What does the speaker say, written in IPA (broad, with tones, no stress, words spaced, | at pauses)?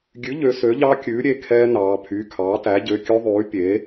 ɡʲʉ˩˥ʎø˩˧ sø˩˥ʎɑ˦˥kʲʉː˩˥ ɾʲe˩˧˩kʰɛː˦˥nɑː˩˧pʰy˩˧˩ kʰɑː˩˥tæ˩˥ ɟø˩˧˩kʲɵ˦˥ðˤʉː˩˥ pʲe˩˥